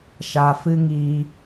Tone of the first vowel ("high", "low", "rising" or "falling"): low